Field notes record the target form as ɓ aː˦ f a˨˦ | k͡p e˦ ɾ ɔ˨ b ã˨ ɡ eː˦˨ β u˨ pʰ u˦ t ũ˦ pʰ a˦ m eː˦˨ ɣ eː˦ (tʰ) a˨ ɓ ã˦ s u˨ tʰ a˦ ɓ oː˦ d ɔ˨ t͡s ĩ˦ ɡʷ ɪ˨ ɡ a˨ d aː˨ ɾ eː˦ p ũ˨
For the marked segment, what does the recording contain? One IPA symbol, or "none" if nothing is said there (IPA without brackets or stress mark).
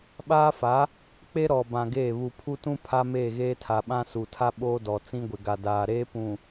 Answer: tʰ